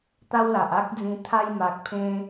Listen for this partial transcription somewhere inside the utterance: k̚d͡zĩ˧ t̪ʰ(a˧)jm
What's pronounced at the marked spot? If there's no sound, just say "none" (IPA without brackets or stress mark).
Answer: a˧